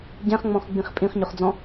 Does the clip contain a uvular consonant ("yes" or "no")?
yes